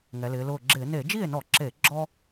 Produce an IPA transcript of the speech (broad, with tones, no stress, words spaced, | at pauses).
ŋɛ˩˧lɪː˩˧ lʊː˧˩ɡ͡ǁɪː˧˩˧ ne˧˩˧d͡ʒi˥˩e̯nɔ˧˩˧ǁe˧˩˧ ɡ͡ǁɔ˦